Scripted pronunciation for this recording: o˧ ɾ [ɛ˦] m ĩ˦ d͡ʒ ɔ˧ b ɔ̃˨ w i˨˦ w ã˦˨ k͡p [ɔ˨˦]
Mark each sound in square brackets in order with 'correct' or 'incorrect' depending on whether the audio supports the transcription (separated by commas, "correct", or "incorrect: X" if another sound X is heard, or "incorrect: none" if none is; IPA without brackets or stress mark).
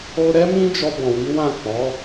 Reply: correct, correct